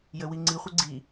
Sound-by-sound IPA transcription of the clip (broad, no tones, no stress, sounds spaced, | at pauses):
j ə w i ŋ͡ǀ i χʷ ɘ ɡ͡ǀ i